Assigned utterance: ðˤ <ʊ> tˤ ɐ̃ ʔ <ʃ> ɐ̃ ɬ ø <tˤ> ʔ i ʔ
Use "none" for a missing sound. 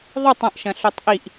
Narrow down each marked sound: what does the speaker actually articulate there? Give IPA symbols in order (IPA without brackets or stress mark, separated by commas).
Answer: ʊ, ʃ, tˤ